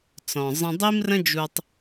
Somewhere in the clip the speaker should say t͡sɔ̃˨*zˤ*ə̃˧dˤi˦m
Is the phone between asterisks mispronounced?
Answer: no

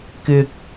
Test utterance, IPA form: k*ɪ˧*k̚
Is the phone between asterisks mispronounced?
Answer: no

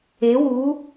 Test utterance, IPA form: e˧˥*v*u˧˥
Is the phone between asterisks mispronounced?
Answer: yes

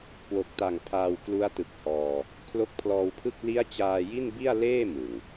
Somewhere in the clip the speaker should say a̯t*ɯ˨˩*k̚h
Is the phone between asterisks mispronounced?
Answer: no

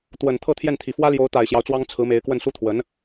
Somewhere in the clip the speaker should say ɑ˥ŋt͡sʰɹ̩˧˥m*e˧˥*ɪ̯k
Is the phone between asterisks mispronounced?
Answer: no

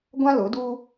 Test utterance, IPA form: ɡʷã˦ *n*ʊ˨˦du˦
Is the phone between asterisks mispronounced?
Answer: yes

